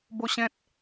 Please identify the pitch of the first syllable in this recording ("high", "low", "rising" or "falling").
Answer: high